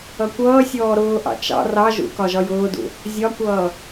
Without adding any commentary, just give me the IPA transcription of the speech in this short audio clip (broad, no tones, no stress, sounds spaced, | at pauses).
ʌ kʷ ʌː sʲ ɔː ɾ ʊː ʔ ɑ̰ t͡ʃ ɑ̰ r ɑ ʒ ṵ k ɒ ʒ ɒ j ʊː d ṵ | zʲ ɒ kʷ ʌː